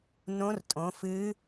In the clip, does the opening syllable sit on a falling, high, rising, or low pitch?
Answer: rising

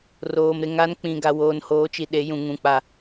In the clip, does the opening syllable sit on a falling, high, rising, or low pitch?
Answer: low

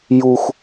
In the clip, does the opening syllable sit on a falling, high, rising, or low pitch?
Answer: low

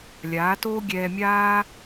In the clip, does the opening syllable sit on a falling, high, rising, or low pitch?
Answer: rising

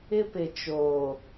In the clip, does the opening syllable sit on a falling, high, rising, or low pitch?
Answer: high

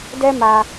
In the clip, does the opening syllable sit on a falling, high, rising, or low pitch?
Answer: high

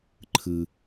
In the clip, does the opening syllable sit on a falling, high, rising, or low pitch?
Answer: low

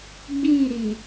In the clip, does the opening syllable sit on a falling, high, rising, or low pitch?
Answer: falling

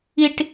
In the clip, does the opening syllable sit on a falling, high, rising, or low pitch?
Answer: high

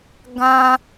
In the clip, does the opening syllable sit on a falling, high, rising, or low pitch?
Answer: high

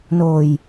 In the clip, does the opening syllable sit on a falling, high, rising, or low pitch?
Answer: low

